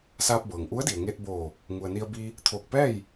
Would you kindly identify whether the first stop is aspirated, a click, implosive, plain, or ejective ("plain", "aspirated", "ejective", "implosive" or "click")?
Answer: plain